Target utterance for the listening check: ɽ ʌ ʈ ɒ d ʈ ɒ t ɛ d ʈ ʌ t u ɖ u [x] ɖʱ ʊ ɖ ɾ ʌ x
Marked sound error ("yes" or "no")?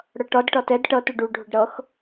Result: yes